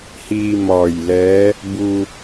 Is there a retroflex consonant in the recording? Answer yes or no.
no